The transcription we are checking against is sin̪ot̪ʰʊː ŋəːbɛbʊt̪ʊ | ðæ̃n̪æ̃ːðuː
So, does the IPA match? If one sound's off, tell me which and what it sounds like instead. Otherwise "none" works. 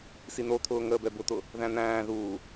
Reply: none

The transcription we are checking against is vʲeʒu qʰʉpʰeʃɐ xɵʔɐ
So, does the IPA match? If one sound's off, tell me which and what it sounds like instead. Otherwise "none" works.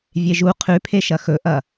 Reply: none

